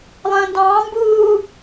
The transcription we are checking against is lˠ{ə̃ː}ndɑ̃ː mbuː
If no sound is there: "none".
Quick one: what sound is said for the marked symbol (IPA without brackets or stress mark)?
ə̃ː